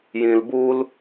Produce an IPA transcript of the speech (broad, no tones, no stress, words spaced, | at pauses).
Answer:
jĩlbul